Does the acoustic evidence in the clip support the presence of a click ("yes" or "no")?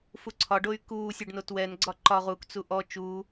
yes